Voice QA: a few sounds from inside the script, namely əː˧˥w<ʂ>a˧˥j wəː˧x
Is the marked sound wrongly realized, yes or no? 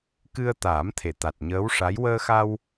no